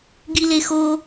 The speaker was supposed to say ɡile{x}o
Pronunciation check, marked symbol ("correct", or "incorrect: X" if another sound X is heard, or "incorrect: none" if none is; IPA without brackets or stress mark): correct